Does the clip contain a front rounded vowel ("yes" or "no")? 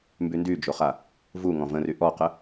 yes